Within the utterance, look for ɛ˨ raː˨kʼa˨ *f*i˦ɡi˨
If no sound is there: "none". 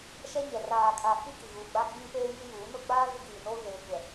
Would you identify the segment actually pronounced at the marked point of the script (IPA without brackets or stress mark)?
f